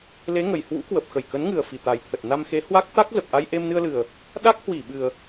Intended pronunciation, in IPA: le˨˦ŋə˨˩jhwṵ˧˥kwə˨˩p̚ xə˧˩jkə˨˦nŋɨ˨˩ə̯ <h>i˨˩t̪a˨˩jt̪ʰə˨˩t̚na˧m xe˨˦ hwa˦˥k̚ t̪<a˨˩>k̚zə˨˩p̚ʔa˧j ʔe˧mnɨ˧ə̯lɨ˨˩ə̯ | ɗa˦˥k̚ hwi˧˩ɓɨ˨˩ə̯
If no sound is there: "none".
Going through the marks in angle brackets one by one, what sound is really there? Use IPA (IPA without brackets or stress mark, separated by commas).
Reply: f, a˦˥